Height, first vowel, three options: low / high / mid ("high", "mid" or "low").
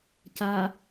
low